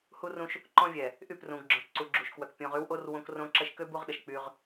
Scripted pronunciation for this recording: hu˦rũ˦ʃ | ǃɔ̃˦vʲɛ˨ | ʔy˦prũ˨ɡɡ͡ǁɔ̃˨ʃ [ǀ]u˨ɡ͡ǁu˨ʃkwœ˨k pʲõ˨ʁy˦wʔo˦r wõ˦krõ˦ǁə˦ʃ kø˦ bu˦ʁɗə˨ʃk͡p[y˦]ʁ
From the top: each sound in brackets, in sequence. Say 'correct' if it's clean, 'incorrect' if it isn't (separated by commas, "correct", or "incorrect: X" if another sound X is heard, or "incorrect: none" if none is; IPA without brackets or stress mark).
correct, correct